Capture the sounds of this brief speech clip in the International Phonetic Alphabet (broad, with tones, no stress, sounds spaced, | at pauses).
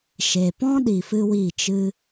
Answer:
ʃ e˨ p ɔ̃˦ ɗ i˧ f ɨ˦ w i˦˨ t͡ʃ ɨ˦